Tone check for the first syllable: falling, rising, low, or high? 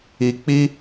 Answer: low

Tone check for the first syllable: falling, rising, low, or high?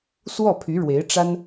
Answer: falling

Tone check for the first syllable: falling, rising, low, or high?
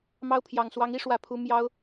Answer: high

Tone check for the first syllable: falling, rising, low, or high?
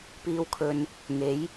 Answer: low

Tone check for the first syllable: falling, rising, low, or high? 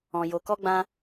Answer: low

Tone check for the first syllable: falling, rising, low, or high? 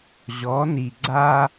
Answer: rising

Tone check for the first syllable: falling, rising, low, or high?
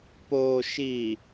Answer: low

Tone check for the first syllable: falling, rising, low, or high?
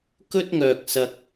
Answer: high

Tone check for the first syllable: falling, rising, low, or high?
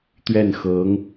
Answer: falling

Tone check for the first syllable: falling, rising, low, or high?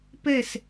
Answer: falling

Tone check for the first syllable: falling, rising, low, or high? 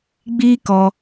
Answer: high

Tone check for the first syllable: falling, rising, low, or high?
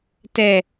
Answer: falling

